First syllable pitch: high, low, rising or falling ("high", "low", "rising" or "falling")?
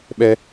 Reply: high